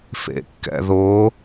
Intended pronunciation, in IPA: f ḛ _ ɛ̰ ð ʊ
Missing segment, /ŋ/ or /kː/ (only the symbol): kː